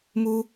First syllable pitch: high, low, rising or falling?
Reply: high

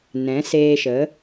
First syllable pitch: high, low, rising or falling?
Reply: rising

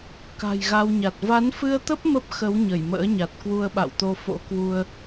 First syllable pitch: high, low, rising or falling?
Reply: low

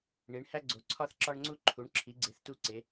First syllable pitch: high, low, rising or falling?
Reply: rising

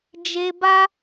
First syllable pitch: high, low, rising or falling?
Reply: low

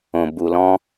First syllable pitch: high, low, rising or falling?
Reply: low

